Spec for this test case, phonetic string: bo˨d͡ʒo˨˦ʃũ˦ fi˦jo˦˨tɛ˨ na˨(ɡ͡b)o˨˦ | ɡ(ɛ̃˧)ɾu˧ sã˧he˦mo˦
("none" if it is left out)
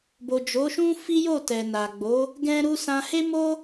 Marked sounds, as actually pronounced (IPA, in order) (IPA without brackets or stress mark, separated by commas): ɡ͡b, ɛ̃˧